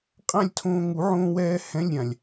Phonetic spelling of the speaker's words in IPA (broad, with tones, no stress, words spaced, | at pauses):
qʼã˥˧lʲtʰõː˧ ŋu˨˩˦ʕõː˧wɛː˧ hɛ̃˧˥˧lʲɾʲã˩lʲ